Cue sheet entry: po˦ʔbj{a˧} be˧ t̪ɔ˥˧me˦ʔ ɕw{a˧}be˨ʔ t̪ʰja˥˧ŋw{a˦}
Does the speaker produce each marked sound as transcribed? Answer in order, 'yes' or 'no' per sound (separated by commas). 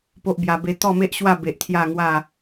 yes, no, no